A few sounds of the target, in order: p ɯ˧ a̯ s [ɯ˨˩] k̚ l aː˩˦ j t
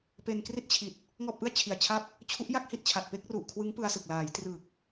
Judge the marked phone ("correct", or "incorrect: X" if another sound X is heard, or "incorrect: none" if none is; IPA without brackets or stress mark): correct